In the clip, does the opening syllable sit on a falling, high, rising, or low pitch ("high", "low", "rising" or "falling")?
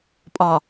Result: low